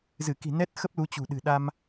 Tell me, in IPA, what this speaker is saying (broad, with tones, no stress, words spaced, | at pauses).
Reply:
zɨ˧˩ki̤˨˩ nɛ˦˥t̚xə˦˥p̚ lu˨˦t͡ɕṳ˨˩ɗɨ̤˨˩ɗa˧m